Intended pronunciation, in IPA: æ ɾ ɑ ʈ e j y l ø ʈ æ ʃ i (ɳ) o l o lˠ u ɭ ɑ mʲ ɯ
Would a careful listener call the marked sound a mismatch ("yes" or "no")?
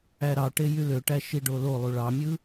yes